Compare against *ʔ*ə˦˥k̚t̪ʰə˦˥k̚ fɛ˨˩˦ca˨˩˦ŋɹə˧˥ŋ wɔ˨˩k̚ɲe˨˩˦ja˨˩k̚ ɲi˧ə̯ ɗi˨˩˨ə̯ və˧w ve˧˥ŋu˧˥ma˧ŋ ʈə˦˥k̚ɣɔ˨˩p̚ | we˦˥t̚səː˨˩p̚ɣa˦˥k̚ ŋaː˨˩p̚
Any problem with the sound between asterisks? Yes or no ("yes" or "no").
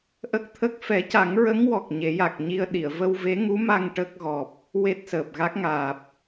no